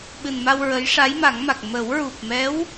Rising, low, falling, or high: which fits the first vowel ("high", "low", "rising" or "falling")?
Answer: low